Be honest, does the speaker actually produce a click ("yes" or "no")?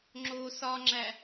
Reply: yes